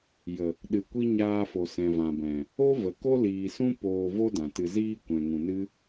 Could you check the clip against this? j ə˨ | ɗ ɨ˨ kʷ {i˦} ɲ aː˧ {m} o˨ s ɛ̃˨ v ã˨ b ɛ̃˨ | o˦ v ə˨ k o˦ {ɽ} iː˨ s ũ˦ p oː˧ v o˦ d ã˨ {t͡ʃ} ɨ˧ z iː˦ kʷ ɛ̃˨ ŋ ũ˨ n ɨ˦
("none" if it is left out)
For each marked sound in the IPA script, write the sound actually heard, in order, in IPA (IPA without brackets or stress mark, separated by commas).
i˦, f, l, t